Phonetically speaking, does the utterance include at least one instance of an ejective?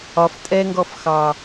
yes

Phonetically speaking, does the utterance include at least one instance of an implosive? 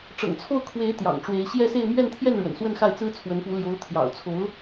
no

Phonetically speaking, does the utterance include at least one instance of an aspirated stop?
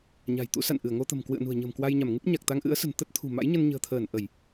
yes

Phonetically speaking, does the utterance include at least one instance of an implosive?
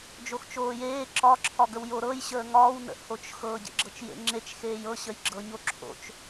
no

